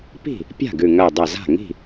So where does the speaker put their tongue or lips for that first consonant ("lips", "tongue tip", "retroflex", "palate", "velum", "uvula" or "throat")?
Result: lips